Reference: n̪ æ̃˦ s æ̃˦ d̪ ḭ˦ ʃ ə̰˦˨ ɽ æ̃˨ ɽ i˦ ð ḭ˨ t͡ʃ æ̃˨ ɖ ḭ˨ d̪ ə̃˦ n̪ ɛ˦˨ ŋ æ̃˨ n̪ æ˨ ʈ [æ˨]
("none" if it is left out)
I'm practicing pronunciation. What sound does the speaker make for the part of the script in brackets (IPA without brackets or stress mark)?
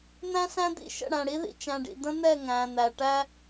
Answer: æ˦